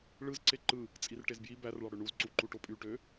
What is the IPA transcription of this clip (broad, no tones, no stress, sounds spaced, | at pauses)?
ɭ ɯ z ǀ e ǃ ɯ | t͡sʼ i r ʈ e z b j i b æ r ɭ ɑ ɽ ø ɳ u z ǀ u ǃ u ʈ o pʼ y ʈ ø